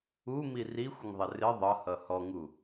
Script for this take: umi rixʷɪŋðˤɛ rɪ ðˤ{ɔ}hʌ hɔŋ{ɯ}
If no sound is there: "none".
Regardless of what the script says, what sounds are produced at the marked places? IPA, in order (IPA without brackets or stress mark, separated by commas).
ʌ, u